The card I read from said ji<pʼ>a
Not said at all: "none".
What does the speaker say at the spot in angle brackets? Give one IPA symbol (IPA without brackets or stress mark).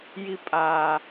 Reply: pʼ